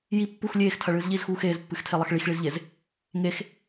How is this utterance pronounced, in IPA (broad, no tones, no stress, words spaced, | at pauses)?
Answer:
ji pːux lʲeːxtʰɐɭɨːz ʎizxuː xeːzpːɨxtʰelˠɐx ɭixɭizʎez | ŋex